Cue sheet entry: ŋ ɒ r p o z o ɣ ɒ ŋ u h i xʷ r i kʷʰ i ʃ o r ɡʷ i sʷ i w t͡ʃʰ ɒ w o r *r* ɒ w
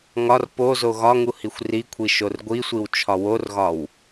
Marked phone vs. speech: incorrect: ɣ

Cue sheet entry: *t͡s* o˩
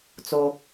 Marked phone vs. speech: correct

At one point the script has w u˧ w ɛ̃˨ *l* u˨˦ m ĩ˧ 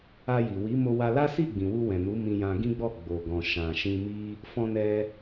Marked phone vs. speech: incorrect: n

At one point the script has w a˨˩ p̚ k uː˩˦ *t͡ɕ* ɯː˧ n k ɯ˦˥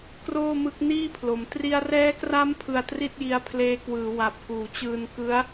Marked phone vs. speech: correct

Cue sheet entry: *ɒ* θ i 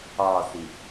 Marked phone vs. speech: correct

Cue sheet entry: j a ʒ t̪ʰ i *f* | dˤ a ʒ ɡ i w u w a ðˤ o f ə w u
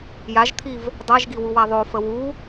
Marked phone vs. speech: incorrect: v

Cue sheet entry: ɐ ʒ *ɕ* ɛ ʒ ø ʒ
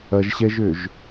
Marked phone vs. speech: correct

